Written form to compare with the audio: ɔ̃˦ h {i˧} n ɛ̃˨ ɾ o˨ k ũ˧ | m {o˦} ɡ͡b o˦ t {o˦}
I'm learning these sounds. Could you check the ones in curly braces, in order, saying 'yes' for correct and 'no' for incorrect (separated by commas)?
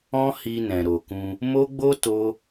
yes, yes, yes